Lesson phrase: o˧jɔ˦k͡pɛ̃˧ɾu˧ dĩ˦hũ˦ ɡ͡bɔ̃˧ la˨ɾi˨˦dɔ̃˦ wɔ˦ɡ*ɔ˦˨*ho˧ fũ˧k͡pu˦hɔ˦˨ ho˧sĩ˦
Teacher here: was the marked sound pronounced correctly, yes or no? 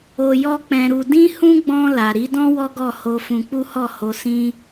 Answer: yes